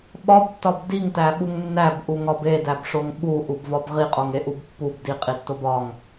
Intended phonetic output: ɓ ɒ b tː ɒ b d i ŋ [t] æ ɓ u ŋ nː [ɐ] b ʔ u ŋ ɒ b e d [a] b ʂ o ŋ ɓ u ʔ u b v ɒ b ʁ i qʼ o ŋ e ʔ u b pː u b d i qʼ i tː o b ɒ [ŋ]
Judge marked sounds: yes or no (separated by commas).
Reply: yes, no, no, yes